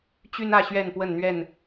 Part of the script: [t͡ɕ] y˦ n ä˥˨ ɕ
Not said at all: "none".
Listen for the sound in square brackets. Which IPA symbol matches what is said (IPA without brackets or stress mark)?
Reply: t͡ɕ